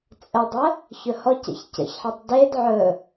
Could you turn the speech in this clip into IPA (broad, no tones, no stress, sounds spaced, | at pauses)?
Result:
t͡sʼ ə dˤ ə | ç ɵ h ɔ c ɛ̰ ç c ə̰ ç ħ e tˤ d e d ʕ ɵ